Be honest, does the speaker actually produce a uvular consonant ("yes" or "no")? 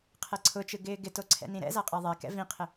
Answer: yes